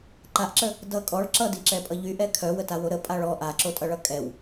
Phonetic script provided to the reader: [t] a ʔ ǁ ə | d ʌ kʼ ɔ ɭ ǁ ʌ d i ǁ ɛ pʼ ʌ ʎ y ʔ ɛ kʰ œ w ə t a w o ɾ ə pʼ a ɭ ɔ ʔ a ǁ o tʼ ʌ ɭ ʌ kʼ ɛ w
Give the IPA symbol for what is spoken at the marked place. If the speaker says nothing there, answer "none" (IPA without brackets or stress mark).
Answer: ǃ